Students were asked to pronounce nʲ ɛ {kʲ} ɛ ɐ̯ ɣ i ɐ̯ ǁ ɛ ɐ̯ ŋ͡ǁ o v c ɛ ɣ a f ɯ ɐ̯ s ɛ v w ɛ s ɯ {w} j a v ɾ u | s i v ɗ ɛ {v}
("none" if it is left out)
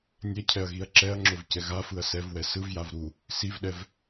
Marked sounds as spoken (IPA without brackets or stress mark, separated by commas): cʰ, v, v